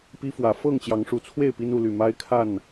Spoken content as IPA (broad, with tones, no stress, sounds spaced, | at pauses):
p i˦ f w ä˨˦ f ɤ˥˨ ŋ t͡ɕ j ɑ˨˦ ŋ ʂ u˨˩ t͡sʰ w e˥˨ ɪ̯ p i˦ n u˥˨ l y˥˨ m a˦ ɪ̯ kʰ a˥˨ n